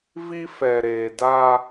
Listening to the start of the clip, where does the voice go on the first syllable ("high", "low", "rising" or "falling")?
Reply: high